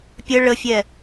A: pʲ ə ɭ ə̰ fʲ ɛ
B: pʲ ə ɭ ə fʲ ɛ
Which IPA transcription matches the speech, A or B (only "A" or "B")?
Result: B